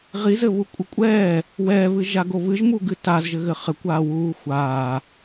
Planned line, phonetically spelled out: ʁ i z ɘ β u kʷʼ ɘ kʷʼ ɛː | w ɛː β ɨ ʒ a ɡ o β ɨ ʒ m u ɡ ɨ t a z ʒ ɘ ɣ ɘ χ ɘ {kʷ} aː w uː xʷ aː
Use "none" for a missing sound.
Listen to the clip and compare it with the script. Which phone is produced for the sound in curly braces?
kʷ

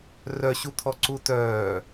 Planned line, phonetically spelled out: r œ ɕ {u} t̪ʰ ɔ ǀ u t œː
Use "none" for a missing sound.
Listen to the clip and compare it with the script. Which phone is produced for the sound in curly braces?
u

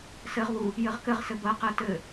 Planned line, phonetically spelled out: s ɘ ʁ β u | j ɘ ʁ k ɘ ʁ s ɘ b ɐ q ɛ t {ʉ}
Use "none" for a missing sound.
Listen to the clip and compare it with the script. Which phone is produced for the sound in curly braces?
ɘ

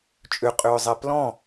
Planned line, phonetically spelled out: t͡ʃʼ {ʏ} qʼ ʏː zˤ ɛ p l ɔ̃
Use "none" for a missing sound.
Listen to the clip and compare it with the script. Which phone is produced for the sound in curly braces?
ʏ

